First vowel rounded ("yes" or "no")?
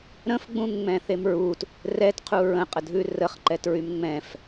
no